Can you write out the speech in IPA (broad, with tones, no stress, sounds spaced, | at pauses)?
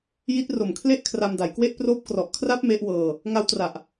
j i˦˥ t̚ r o˨˩ m kʰ l e˥˩ ʔ kʰ r a˧ m d a˩˦ j k w e˥˩ ʔ p r oː˦˥ p̚ k r ɔ˨˩ ʔ kʰ r a˦˥ p̚ m e˦˥ ʔ w ɤː˧ | ŋ a˦˥ w t r a˨˩ ʔ